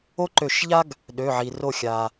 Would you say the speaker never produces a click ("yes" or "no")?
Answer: no